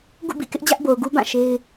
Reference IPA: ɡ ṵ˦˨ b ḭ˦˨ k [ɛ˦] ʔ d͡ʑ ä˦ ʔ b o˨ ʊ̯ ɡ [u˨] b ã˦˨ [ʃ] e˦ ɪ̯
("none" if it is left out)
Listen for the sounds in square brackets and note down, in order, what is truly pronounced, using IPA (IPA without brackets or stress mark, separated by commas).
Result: ɪ˦, u˦, ʃ